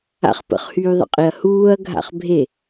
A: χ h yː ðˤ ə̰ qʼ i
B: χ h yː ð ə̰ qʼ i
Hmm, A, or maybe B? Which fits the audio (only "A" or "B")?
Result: A